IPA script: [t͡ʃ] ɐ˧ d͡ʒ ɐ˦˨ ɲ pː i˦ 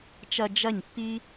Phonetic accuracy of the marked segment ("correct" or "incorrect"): correct